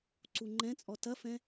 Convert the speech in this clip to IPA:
ǀ u ŋ͡ǃ ɛ̃ t͡sʼ ɔ t ɐ f ɛ̃

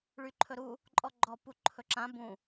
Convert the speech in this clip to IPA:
ɭ y ǃʰ ɵ ɾ u | ǃʼ ɔ ɡ͡ǃ ɔ p u ǃʰ ɵ ǁ ã b ũ

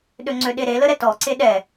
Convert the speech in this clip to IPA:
ɗ ø ŋ͡ǀ ø ɗ e ɾ e l ə ɾ ɛ t ɔ ǀ e ɗ ɛ

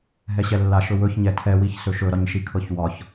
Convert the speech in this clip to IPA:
ɦ ɛ ɕ ɛ lː a ʃ ɵ w ɵ ç ɲ ɛ tʰ ɛ w i ç s ɵ ʃ ɵ ɾ ɒ ɲ ʃ i kʰ ɤ ç w ɒ ç

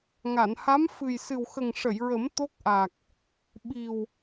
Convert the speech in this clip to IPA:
ŋ a˨˩˨ n h a˧˥ m f ɨ˨˩ j s ɨ˨˩ w x ə˨˩ ŋ ʂ ə˨˩˨ j ɹ ə˨˩˦ m t̪ o˦˥ k̚ ʔ a˨˩ k̚ | ɓ i˨˩ w

